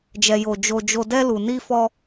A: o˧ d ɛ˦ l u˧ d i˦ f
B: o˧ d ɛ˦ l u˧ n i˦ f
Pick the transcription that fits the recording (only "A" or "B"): B